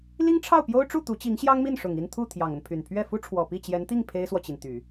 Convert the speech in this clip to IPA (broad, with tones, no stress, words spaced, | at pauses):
li˥ŋʈ͡ʂʰɑ˥˩ʊ̯pjo˥ʊ̯ʈ͡ʂu˥˩ t̪u˧˥t͡ɕi˧˥ŋɕjɑ˥ŋmi˥˩n ʂʊ˨˩ŋi˥˧nt̪ʰu˥˩ t̪ʰjɑ˨˩ŋə˦npʰy˨˩n pʰɥɛ˥˩fu˥ʈ͡ʂʰwɔ˨˩ pi˥˩t͡ɕjɛ˧˥nt̪i˥˩ŋ pʰe˥ɪ̯swɔ˨t͡ɕi˩nt̪y˨˩˦